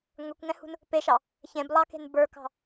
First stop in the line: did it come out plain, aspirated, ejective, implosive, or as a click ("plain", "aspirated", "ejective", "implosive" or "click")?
plain